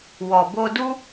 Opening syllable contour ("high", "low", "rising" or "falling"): low